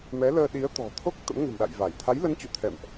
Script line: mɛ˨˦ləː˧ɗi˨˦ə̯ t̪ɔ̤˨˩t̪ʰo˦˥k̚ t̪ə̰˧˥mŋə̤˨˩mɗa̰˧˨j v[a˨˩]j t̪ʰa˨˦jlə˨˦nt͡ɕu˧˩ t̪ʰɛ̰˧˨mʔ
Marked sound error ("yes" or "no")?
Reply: yes